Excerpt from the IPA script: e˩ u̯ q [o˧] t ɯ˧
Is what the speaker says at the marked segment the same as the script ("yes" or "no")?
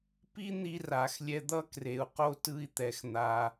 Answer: yes